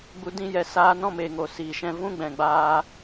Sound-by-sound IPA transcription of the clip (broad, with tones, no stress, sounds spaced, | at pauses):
ɡ͡b u˧ d ĩ˧ j ɛ˨ s aː˧ n ɔ̃˦ m e˨ ŋ o˨ s iː˨ ʃ ɛ̃˧ v ũ˦ ɡ͡b ɛ̃˨ ɡ͡b aː˧